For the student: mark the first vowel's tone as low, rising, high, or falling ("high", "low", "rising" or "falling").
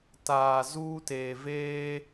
low